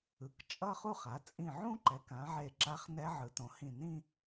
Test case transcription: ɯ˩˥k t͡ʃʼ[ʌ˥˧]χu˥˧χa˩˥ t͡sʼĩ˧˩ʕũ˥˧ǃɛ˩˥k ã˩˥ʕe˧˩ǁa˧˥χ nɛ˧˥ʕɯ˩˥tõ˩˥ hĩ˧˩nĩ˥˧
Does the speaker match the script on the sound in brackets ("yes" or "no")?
yes